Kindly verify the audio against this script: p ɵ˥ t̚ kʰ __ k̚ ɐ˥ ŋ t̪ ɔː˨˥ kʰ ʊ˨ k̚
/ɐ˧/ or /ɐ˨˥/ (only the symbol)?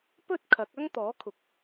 ɐ˨˥